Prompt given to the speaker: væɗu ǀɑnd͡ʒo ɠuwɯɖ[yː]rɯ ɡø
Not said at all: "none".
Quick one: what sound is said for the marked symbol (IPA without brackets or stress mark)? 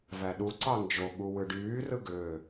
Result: yː